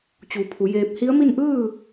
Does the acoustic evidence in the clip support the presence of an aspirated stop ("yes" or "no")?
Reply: yes